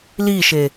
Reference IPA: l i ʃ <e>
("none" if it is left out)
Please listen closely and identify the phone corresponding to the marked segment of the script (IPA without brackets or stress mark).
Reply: e